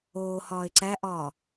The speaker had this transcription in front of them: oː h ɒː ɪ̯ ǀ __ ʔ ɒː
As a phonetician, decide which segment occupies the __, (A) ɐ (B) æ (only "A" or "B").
B